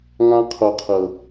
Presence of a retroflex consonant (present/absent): absent